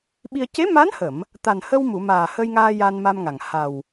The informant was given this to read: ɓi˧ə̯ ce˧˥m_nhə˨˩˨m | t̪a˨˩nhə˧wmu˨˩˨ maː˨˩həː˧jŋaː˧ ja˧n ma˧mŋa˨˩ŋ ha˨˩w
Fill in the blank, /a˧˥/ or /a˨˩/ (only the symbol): a˧˥